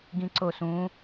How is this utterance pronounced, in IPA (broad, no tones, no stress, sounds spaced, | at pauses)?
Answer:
ɡ ĩ ǀ o s ũ